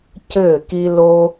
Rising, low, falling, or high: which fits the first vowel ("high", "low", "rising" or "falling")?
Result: falling